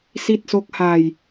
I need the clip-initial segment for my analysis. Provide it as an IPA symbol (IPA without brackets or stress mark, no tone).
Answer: s